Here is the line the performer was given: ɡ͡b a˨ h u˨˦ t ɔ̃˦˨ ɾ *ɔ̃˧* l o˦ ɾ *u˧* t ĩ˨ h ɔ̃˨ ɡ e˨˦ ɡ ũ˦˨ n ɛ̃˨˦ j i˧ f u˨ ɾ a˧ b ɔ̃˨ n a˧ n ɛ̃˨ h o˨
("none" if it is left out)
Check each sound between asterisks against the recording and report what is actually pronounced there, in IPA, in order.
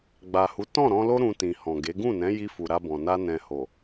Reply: ɔ̃˧, ũ˧

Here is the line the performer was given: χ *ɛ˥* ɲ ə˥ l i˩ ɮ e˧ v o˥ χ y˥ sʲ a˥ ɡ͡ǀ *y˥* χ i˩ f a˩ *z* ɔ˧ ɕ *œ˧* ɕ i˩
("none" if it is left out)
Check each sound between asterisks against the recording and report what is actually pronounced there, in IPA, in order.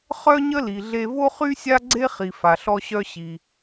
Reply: œ˥, e˥, ɬ, œ˧

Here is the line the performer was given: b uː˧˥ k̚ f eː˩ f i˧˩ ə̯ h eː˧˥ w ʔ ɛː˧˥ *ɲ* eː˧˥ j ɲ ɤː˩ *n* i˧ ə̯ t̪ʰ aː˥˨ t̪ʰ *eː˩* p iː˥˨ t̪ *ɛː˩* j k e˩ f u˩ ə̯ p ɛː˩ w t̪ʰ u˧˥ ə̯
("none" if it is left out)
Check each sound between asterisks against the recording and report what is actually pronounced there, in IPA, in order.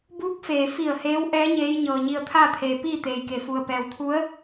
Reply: ɲ, ɲ, eː˩, eː˩

